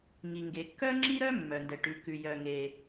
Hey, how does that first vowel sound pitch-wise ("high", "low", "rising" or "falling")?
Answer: low